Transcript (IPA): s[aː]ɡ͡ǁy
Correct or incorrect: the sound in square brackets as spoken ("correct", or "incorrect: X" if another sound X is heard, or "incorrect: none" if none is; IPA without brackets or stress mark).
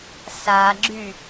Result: correct